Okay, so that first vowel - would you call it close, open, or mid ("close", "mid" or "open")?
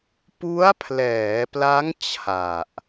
close